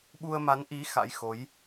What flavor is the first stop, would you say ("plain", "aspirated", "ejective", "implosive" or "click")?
implosive